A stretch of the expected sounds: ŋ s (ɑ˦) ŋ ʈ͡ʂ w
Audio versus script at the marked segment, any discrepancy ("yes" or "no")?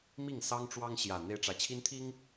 no